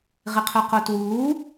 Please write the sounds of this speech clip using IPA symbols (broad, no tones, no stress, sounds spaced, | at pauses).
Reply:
ʁ ɪ qʰ œ q o t w uː